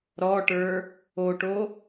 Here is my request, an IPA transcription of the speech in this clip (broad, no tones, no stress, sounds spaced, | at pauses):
ɾ ɔ ʈ ə˞ | o ʈ o